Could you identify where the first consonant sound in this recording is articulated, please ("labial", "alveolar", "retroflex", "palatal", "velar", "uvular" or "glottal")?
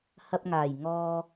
glottal